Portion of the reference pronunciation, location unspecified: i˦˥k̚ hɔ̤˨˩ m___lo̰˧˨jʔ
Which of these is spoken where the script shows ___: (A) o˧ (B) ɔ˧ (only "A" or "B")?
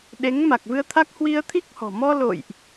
B